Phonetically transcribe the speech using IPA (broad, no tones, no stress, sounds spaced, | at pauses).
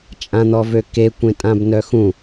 t͡ʃʼ ã n̪ ɔ v ø k e kʷ ẽ tʼ ã b n œ x ũ